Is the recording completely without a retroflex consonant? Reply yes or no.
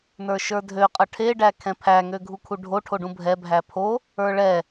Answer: no